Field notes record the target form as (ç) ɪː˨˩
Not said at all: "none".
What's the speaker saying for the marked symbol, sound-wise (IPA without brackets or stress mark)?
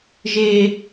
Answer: ʒ